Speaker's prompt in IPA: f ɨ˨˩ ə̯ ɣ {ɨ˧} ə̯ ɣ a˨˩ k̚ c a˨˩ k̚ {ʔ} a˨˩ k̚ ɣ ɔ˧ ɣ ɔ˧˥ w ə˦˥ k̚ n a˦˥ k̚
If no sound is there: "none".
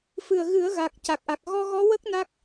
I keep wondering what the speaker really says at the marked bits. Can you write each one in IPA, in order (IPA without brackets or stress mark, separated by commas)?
ɨ˨˩˦, ʔ